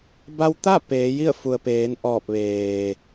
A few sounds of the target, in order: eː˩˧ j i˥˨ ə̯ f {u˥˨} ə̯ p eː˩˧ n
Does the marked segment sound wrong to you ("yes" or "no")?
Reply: yes